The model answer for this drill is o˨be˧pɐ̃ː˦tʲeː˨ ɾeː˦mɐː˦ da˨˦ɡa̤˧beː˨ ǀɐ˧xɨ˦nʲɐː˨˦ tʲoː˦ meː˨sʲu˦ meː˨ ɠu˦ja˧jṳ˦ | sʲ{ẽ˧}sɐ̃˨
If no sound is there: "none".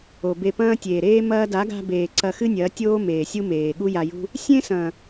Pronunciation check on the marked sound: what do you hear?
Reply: ẽ˦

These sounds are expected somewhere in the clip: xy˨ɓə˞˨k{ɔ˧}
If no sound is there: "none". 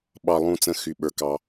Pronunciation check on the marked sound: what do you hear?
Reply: ɑ˧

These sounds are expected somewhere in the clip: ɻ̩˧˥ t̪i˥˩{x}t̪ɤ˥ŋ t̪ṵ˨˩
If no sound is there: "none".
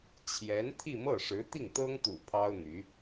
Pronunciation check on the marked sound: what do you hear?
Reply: ŋ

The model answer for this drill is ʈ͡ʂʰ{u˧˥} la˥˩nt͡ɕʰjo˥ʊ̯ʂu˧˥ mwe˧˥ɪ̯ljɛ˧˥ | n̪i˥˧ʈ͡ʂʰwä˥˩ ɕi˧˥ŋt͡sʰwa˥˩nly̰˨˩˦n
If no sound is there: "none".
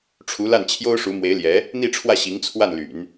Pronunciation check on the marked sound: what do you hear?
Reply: u˧˥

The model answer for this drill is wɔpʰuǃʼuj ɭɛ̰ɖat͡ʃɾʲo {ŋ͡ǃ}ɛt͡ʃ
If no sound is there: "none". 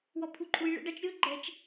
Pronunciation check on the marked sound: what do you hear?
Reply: ɡ͡ǃ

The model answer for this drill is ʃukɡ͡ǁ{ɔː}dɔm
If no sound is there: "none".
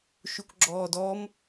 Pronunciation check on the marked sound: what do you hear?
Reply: ɔː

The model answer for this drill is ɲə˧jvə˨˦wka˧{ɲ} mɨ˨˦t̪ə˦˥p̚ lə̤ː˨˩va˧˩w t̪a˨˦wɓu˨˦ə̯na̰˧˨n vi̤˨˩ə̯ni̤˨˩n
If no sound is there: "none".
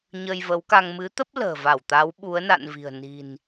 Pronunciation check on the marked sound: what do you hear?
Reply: ŋ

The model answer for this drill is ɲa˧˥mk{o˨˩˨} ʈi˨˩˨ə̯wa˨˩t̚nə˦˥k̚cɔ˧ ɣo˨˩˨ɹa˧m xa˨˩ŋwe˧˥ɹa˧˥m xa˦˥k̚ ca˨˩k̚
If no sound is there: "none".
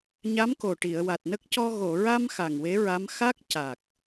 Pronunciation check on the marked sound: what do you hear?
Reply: o˨˩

